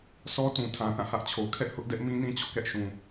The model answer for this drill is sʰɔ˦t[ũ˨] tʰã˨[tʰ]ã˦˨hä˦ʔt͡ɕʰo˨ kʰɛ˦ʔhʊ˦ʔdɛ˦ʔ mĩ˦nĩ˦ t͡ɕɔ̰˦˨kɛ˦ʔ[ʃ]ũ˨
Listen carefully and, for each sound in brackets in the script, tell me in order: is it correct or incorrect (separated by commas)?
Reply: correct, incorrect, correct